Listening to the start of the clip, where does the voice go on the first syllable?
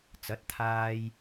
rising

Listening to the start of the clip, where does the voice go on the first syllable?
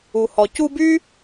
low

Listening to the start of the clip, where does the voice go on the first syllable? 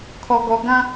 low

